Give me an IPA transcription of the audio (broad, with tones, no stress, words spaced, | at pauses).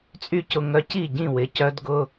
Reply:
t͡sʼy˥˩cʊ˧ŋœ˧ci˥˩ ɟĩ˥˩wɪ˩˥cœ˧˥d ɡʊ˧˥˧